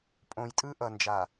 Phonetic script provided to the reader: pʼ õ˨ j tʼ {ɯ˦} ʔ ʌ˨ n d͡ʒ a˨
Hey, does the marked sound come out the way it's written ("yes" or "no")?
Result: yes